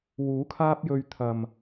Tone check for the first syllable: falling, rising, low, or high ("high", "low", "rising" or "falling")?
rising